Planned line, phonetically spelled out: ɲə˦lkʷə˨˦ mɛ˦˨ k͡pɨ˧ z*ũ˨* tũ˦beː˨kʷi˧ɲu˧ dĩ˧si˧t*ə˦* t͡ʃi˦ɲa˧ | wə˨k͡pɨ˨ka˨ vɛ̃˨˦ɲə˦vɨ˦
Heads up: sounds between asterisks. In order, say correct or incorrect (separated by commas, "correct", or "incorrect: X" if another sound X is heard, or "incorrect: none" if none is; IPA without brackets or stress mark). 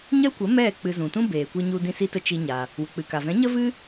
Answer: correct, incorrect: ə˧